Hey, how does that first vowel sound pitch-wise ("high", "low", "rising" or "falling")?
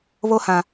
high